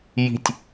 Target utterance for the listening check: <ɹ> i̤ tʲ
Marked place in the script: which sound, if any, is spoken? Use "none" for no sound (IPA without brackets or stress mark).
j